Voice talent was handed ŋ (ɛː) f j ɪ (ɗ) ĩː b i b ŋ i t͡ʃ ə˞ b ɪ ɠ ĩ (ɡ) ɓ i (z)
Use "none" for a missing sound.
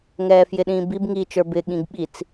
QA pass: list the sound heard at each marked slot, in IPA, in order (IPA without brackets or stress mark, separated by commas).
ɛː, ɗ, ɡ, t͡s